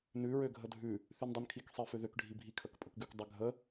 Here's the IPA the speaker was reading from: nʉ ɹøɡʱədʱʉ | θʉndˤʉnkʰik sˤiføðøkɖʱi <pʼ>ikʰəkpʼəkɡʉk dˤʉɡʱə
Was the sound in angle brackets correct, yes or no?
no